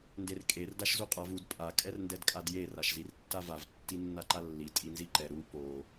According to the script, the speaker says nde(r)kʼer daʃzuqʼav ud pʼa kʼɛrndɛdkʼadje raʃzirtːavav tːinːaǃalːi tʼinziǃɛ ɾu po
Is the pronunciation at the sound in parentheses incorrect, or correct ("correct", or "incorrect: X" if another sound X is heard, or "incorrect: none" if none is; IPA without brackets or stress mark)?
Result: correct